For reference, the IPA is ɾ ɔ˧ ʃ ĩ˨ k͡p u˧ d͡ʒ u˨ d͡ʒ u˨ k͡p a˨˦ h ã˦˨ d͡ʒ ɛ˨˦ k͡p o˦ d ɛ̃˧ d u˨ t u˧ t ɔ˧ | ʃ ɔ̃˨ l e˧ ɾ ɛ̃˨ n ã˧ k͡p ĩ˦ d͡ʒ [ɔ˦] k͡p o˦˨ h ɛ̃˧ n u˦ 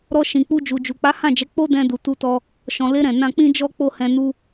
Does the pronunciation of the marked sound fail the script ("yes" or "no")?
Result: no